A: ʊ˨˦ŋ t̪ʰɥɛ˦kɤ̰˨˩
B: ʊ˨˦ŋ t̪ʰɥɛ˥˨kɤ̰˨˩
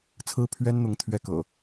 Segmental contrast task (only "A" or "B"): B